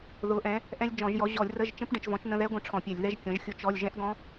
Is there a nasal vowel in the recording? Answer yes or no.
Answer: yes